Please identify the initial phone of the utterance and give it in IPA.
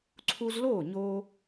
ǀʰ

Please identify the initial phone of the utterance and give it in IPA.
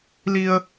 l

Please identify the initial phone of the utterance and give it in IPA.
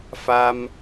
f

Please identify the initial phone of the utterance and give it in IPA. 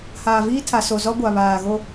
h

